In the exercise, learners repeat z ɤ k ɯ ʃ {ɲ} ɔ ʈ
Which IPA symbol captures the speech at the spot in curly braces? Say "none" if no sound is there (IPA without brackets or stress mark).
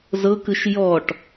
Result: j